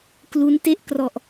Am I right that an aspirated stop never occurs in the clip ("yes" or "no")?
yes